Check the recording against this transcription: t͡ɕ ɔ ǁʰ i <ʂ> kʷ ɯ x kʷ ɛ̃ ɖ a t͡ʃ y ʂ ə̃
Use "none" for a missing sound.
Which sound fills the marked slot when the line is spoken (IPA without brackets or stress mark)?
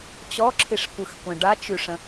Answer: ʂ